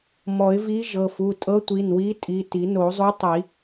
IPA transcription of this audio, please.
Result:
m ɔ˨˩˦ ɪ̯ v i˧˥ ʒ ɤ˩˧˩ f u˩˧˩ tʼ ɤ˧˥ tʷ i˩˧˩ n w i˧˥ tʼ i˩˧˩ t i˨˩˦ n o˨˩˦ zˤ u˧˥ tˤ i˨˩˦

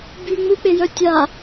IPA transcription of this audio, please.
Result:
b y ŋ͡m u k͡p e j œ tʲ a

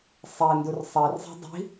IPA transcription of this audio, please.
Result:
sˤ e n d u r sˤ e r zˤ e̤ dˤ i̤

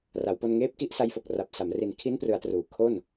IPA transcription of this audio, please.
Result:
r a˩˦ w p o˧ n ŋ eː˦˥ p̚ k i˥˩ ʔ s a˦˥ j f o˨˩ k̚ r a˨˩ p̚ s a˩˦ m r i˨˩ n kʰ i˦˥ n p r ɯ˩˦ a̯ t r uː˩˦ kʰ o˥˩ n

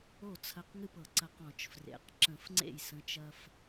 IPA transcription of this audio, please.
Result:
o˥˩ t͡sʰ ɐ˧ q ŋ ɨ˥˩ p ɤ˧˩˧ ǀ ɐ˧ q ɔ̃˧˩˧ t͡ʃ f r ḛ˩˧ q ǁ ə̃˧˩˧ f ŋ͡ǀ ḛ˥˩ j s ə̃˩˧ t͡ʃ ɐ˧ f

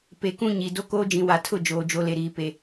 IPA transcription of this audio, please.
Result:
p e˨ k ũ˦ ɲ i˨ d o˦ k oː˦ d͡ʒ ĩ˨ w a˨ tʰ ʊ˦˨ d͡ʒ oː˨ d͡ʒ o˦ l e˨ ɾ iː˨ p e˨

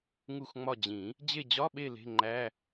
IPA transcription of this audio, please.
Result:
ŋ u˦˨ x ŋ͡m ɒ˦˨ d͡ʑ ĩ˨˩˦ | d͡ʑ e˦˨ d͡ʑ ɒ˧˥˧ ɓ e˦˨ l e̤˧˥˧ ŋ͡ǃ æ˧˥˧

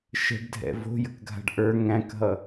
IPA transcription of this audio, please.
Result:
ʃ ə̤ ɖ dʱ ɛ̰ v o̤ j ə k ɡʱ a̤ ɖ ʔ ə˞ ŋ æ̃ k ɦ ʌ

